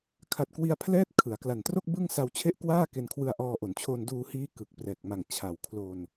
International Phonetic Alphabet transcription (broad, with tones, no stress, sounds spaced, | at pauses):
kʰ a˨˩ t̚ k w i˧ a̯ pʰ l ɛː˦˥ t̚ kʰ ɯ˩˦ a̯ k l a˨˩ n t r o˥˩ k̚ b ɯ˥˩ ŋ s a˧ w t͡ɕʰ e˦˥ ʔ k w aː˥˩ k e˧ n kʰ w ɯ˧ a̯ ʔ ɔː˧ ʔ o˩˦ n t͡ɕʰ o˧ n d uː˧ h iː˦˥ k ɯ˨˩ k̚ p r ɛː˨˩ k̚ m a˨˩ ŋ t͡ɕʰ a˨˩ w kʰ l o˧ n